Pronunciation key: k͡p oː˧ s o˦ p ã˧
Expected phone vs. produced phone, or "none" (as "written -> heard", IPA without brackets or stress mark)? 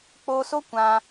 p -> kʷ